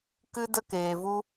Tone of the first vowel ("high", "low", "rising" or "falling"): high